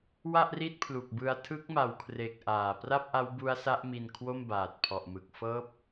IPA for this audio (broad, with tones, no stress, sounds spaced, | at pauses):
w a˥˩ ʔ r i˥˩ t̚ pʰ l u˨˩ k̚ b ɯ˧ a̯ tʰ ɯ˦˥ k̚ m a˨˩ w kʰ r e˨˩ k̚ ʔ aː˨˩ p r a˥˩ p̚ ʔ a˦˥ w b u˦˥ a̯ s a˦˥ ʔ m i˧ n kʰ w o˥˩ m b aː˨˩ t̚ pʰ ɔ˨˩ ʔ m ɯ˨˩ k̚ f ɤː˦˥ p̚